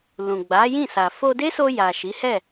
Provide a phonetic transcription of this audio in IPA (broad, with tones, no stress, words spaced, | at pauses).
lũ˨ɡ͡ba˨˦jĩ˦˨ sa˨fo˧de˦so˧ ja˨ʃi˨˦ hɛ˦˨